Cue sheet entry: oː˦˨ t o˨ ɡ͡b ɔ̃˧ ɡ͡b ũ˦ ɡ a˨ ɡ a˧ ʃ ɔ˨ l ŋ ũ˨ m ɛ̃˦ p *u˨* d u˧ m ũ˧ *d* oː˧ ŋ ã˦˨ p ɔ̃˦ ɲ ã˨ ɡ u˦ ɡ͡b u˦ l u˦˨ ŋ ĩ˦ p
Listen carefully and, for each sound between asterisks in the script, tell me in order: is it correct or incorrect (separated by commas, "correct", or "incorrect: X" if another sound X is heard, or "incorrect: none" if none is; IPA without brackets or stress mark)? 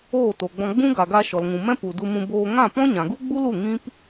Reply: correct, incorrect: b